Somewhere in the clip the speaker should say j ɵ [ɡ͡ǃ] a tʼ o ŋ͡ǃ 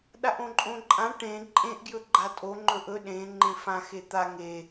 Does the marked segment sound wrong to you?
no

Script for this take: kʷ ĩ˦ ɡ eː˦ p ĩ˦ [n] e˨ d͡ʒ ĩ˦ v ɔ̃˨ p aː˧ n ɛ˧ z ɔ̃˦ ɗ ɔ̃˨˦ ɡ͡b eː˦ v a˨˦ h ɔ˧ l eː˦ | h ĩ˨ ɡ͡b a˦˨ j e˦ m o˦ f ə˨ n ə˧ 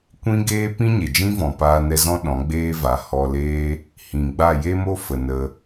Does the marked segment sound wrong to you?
yes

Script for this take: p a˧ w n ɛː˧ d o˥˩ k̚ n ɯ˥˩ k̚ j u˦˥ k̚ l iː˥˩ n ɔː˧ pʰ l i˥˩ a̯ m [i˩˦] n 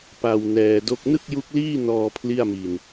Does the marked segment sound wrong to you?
yes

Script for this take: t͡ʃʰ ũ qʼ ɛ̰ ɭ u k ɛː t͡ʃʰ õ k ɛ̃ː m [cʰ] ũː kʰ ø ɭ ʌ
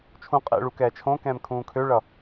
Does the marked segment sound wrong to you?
yes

